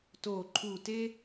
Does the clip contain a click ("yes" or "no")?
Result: yes